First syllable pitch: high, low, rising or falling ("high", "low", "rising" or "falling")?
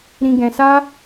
low